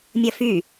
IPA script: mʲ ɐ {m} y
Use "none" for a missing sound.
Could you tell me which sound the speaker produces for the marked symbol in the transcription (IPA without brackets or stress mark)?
f